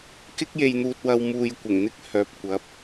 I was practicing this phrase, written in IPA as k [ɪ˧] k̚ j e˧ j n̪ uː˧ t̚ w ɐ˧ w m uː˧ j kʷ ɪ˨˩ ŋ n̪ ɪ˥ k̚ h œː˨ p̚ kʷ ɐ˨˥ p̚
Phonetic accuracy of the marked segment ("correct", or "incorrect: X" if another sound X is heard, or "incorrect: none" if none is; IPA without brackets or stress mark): incorrect: ɪ˥